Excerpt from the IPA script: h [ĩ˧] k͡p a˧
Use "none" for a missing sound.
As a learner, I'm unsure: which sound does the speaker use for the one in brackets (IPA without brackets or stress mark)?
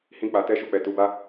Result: ĩ˦